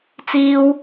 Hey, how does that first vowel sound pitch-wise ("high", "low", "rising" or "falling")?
high